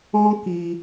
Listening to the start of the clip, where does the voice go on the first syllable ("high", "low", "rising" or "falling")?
high